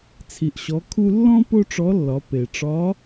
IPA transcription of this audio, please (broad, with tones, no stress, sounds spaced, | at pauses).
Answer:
t͡sʰ i˩ ʔ ɕ ɔ˩˧ kʰ u˧ lː ɔ̃˥ p o˥ ʈ͡ʂ ɔ˧˥ lː ɒ˩˧ p e˩ ʈ͡ʂ ɒ˧˥